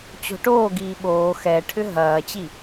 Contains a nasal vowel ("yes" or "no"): no